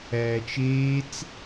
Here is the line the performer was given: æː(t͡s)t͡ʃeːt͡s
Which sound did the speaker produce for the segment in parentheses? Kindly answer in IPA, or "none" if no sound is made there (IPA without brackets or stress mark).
none